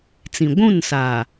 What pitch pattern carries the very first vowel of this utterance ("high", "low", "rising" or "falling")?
low